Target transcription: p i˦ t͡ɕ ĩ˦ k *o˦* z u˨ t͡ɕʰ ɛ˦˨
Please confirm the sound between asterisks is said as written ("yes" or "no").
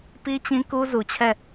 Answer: no